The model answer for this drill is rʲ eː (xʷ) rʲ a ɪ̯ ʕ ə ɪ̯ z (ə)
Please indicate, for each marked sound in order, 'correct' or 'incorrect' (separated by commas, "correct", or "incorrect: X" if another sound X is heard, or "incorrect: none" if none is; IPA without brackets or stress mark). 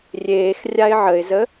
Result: incorrect: x, correct